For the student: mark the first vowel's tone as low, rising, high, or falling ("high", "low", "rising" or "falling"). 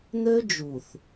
high